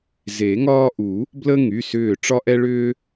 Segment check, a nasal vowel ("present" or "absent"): absent